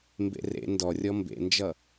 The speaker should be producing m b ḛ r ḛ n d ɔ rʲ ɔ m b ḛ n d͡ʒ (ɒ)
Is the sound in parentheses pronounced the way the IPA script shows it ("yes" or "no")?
no